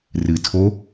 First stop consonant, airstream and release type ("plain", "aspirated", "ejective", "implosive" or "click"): aspirated